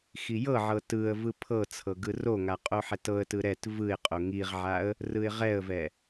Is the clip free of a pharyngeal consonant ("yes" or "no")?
no